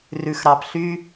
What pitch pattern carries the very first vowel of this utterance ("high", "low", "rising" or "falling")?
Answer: low